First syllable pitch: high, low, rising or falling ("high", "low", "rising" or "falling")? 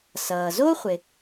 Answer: low